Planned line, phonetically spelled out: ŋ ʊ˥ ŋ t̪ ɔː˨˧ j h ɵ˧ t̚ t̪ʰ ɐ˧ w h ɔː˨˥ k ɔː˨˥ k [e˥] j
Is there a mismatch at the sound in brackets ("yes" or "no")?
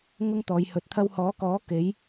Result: yes